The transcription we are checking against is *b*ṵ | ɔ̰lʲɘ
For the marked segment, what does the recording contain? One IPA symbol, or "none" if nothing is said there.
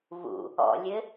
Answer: β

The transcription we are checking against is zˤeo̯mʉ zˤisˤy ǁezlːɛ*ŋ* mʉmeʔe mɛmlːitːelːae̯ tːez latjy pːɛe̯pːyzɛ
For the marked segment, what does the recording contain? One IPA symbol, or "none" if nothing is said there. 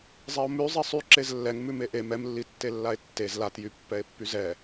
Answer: ŋ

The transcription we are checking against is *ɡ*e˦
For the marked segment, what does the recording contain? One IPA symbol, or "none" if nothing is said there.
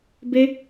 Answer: b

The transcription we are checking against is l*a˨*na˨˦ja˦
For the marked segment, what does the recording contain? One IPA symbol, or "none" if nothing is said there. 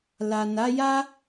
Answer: a˨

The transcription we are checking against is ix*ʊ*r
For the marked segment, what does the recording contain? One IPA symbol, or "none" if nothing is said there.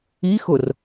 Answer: ʊ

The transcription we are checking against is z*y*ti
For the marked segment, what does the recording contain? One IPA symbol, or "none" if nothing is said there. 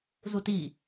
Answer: u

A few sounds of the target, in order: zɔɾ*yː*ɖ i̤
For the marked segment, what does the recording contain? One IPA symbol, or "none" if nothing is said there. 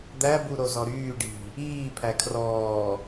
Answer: yː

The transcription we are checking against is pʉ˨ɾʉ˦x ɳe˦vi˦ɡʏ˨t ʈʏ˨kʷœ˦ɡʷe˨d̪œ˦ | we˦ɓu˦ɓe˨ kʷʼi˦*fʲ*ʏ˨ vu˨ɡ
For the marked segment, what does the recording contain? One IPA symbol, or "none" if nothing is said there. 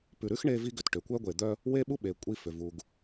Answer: f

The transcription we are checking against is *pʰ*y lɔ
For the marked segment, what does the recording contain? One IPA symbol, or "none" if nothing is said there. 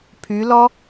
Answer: pʰ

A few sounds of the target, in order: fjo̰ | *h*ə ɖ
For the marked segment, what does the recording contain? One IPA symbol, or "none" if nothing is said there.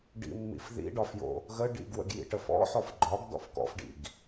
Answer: ɣ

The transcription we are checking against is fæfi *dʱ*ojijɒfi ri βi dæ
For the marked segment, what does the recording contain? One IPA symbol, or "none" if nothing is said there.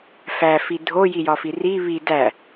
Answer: dʱ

